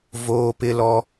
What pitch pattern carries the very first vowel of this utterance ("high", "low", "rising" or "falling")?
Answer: high